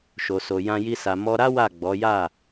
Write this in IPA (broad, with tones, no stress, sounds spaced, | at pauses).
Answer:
ʃ o˧ s o˧ j ã˦ j i˦ s a˧ m ɔ˧ ɾ a˦ w a˦˨ ɡ͡b ɔ˨˦ j a˦˨